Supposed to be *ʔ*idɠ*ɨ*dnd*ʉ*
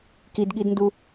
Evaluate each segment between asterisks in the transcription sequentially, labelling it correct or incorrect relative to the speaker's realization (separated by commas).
incorrect, incorrect, incorrect